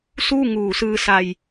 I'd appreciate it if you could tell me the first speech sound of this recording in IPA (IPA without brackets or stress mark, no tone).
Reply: s